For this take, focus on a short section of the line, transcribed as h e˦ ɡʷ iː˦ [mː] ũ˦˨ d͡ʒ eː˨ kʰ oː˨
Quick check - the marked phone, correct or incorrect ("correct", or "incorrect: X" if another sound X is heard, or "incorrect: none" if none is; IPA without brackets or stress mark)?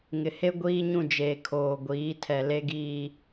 incorrect: ɲ